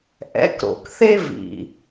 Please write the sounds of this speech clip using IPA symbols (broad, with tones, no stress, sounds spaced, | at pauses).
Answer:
ʔ ɛ̰˨˦ k ɾ o̰˨ k θ e˦ v ḭ˨